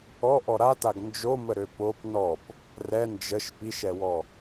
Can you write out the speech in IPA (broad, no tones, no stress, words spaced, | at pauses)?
ɔʔɔ ɾataɡ nd͡ʒoməɾø pop nɔp | rɛ nd͡ʒəʃ piʃɛwɔ